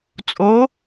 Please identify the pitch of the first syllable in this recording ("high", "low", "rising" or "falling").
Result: rising